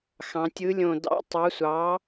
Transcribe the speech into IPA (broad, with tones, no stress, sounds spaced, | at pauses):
x ɑ̃˩˧ tʲ ɯ˨˥ lʲ õ˧˩ d ɑ̰˧˥˧ tˤ ɑ˨˥ sʷ ɑː˨˥